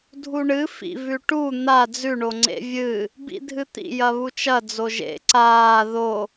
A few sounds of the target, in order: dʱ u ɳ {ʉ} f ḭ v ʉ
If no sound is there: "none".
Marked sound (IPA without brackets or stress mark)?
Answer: ɨ